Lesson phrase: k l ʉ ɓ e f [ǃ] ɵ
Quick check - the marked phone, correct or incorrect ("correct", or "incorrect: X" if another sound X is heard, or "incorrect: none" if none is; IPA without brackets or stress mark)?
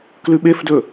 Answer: incorrect: d